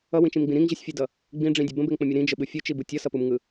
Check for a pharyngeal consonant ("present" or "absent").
absent